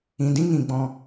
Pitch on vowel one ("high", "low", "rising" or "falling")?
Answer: low